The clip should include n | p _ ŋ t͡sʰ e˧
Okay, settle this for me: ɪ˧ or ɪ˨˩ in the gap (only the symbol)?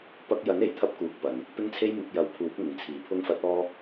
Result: ɪ˧